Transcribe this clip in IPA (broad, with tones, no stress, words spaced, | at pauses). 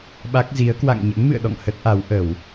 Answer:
ɓa˦˥k̚zi˨˦ə̯ kwa̰˧˨ŋɲə̰˧˥nmɨ̰˧˨ə̯ɗɔ̰˧˨ŋ hə˦˥t̚ʔa˨˦wʔə˧˩˨w